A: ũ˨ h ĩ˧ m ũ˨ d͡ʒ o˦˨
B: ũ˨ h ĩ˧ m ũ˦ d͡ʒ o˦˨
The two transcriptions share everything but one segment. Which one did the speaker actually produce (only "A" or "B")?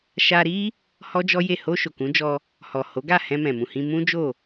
B